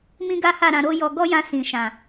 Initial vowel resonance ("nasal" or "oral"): nasal